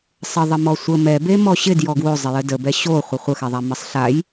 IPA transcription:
sˤ ə ðˤ ə m ɔ sʷ ə m ɛ b e m ɔ ɕ ɪ d j ɔ ɡ w o zˤ ɪ j ə d ə b ɛ ɕ o χʷ ə χʷ ə x ɛ ðˤ a m ə sˤ ɬ a j

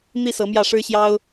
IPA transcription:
n̪ i˥˩ s ɤ˧˥ m j ä˥˩ ʂ ɻ̩˥ ɕ j ɑ˥ ʊ̯

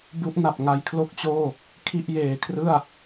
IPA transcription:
b u˦˥ ʔ n a˨˩ p̚ ŋ a˧ j kʰ l o˥˩ k̚ t͡ɕ oː˥˩ | kʰ i˥˩ ʔ j eː˨˩ kʰ r ɯ˥˩ a̯

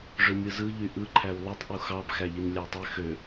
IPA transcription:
ʐ ø mʲ ɯ z ɯ ʎ y ʔ ɯ ǃʰ æ w lˠ y tˤ ʔ u x ɑ b x æ ʎ i n lʲ æ tˤ y x ø

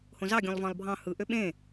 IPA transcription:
h õ z ɑ ɡʲ õ lˠ v ɑ̃ lˠ bʱ ɑ̃ h ɯ ʔ ø ɓ ẽ

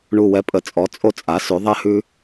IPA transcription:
ɳ u˧˩ w ɛ˧ pʼ ə˩˥ t͡sʼ ɔ˩˥ t͡sʼ o˧ t͡sʼ a˩˥ s ʉ˩˧ ðˤ ɛ˧ h ʉ˧

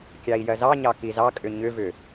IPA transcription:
kʲ ɑ i̯ j ɜ z ɑ ɲ ɑ k i z ɑ kʼ ʏ ɲ ʏ v ʏ

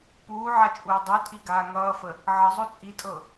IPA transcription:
p uː ʕ a t͡ʃʼ uː dˤ u tʼ i ɡ aː ŋ ʌː f ə | ʕ ʌ zˤ o t͡sʼ i tʼ ɤ

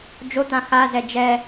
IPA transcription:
d͡ʒ o t̪ ã x a z ɛ d͡ʒ ɛ

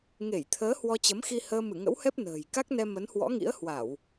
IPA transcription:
ŋ e˧˩ j t̪ʰ əː˨˦ h w ɔ˧ t͡ɕ ə˨˦ m x i˧ h əː˧ m ɨ˧˩ ŋ ə̰˧˥ w h ɛ˦˥ p̚ n ə̤ː˨˩ j k a˦˥ k̚ n ɛ˧ m ə˨˦ n h w ɔ̰˧˥ ŋ ḭ˧˥ ə̯ h w a˧˩˨ w

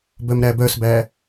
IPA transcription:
b œ m ɾ æ b œ s b æ

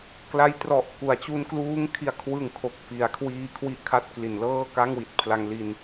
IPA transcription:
k l a˦˥ j t r ɔ˨˩ ʔ k u˩˦ a̯ t͡ɕ u˧ n k l uː˦˥ ŋ kʰ i˨˩ a̯ kʰ w ɯ˨˩ ŋ kʰ o˨˩ k̚ f i˩˦ a̯ kʰ w iː˧ kʰ w i˥˩ ʔ kʰ a˥˩ t̚ k l i˩˦ n l ɤː˥˩ k a˥˩ ŋ w i˨˩ t̚ pʰ l a˧ ŋ l i˧ n

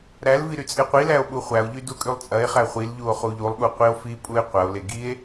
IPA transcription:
ɾ æ l v i ɾ y t͡sʼ e qʷ i l æ o̯ ɓ u χʷ æ o̯ ʎ y d u kʼ y lˠ t͡sʼ ɐ e̯ χ æ χʷ i l ʎ u o̯ χ u ʎ u lˠ ɠ u qʷ i o̯ f i pʼ u e̯ qʷ ɐ o̯ l e ɡ i e̯

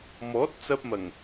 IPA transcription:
m ɔː˨˥ t̚ t͡s ɐ˧ p̚ m ɐ˨˩ ŋ

